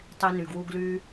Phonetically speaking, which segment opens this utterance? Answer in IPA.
tˤ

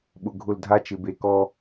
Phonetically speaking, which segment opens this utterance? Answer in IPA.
ɓ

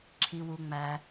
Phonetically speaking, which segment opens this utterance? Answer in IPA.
ǁʰ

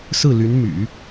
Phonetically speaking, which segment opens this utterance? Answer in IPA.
s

